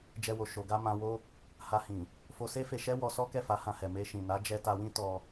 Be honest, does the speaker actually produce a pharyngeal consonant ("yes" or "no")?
no